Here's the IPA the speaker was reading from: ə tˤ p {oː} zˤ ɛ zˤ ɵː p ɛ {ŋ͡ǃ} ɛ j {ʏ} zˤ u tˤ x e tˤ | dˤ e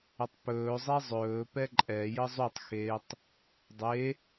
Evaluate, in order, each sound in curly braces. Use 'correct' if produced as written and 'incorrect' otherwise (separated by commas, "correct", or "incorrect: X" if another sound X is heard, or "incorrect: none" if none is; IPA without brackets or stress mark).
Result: incorrect: ɵː, incorrect: ǃʼ, incorrect: ə